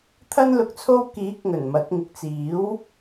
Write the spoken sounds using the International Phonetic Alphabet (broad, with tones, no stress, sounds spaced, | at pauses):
t̪ʰ ɐ˥ n l ʊ˨ k̚ t͡sʰ o˥ w k iː˨˥ k̚ ŋ ɵ˨˩ n m ɐ˨˥ t̚ ŋ ɪ˨ k̚ t͡s iː˨˥ w